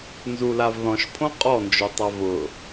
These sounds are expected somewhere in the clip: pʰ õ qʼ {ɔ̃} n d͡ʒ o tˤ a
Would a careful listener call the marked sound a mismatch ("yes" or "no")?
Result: yes